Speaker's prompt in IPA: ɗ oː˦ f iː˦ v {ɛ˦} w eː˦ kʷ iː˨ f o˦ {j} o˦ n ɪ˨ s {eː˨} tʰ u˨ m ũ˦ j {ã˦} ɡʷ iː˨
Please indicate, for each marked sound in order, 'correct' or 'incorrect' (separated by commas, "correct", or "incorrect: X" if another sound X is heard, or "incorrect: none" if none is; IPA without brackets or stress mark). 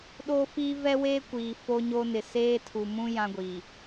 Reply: correct, incorrect: ɲ, incorrect: eː˦, correct